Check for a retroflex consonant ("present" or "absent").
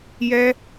absent